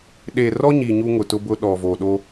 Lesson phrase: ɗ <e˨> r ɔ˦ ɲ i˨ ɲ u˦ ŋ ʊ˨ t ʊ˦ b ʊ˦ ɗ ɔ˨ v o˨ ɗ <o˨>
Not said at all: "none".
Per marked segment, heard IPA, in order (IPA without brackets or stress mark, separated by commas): e˨, o˦